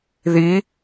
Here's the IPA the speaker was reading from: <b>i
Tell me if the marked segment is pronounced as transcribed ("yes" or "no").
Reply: no